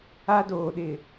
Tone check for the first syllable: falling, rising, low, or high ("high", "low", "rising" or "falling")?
high